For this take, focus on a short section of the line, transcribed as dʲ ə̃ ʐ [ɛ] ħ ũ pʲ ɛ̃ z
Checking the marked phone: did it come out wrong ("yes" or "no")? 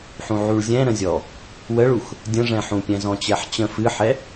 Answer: yes